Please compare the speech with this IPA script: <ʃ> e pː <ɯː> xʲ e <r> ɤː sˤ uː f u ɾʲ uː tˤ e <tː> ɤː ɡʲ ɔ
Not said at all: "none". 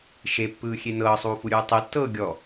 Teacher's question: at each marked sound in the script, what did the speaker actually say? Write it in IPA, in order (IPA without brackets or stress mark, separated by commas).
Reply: ʃ, ɯː, n, tː